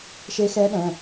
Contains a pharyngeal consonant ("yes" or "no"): no